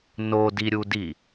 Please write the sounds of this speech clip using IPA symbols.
n o d i ɾʲ u d i

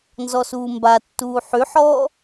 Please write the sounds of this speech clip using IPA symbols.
n z ɔ s uː m b a tː uː ħ y ħ ɔː

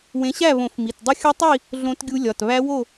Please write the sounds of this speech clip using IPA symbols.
w ẽ˨˦ ɕ æ˥˨ β õ˨˩˦ f m i˩˧˩ t dˤ i˦˥ xʲ ɒ˦˥ tˤ i˥˨ | ɮ õ˦˥ t ɡʲ u˦˥ lʲ ɒ˩˧˩ t β æ˦˥ w o˥˨

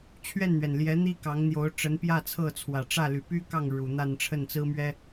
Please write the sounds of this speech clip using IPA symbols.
t͡ɕʰ ɥ ɛ˥˩ n n̪ ɥ ɛ˩ n l j ɛ˧˥ n̪ i˥ k ɑ˧˥ ŋ n̪ j o˧˥ ʊ̯ ʈ͡ʂ ə˧˥ n p j ä˥˧ t͡sʰ ɤ˥˩ t͡sʰ w ä˨˩ ʈ͡ʂ ä˥˩ l y˨˩ p y˥ k ɑ˥˩ ŋ ɻ u˨˩ n̪ a˥˧ n ʈ͡ʂʰ ə˥˩ n t͡s ɹ̩˥ m ɥ ɛ˥

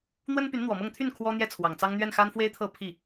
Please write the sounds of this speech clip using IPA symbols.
n̪ w ə˥ n p y˧˥ n n̪ w ɔ˨˩ m ɤ˥˧ ŋ t̪ʰ y˥˩ n kʰ w ɔ˥ n̪ j ɛ˥˩ t͡sʰ w ɑ˨˩ ŋ t͡s ɑ˥ ŋ n̪ ɥ ɛ˥˩ n x a˥ n f w e˥ ɪ̯ t̪ʰ ɤ˥˧ pʰ i˥˩

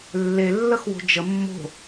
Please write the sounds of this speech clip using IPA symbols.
lː e lː ə x w o̤ d͡ʒ ə mː o̤

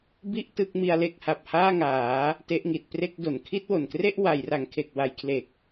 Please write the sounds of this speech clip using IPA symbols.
b i˦˥ ʔ t ɯ˦˥ k̚ m i˧ a̯ l e˥˩ k̚ h a˨˩ p̚ h aː˥˩ ŋ aː˩˦ | t e˦˥ ʔ ŋ i˨˩ t̚ p r e˥˩ k̚ d o˨˩ n kʰ i˥˩ t̚ w o˨˩ n k r e˥˩ ʔ w a˩˦ j r a˩˦ ŋ kʰ e˨˩ k̚ w a˩˦ j kʰ l e˨˩ k̚

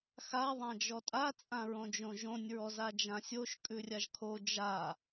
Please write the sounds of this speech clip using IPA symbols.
x a ðˤ ã d͡ʒ ɔ tʼ a t͡sʼ ã ɹ õ d͡ʒ õ ʒ õ nʲ ɹ ɔ z a d͡ʒ ã sʲ o ʃ kʼ ʉ rʲ a ʒ kʰ o d͡ʒ a

